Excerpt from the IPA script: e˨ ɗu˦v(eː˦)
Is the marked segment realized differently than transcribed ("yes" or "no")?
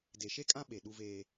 no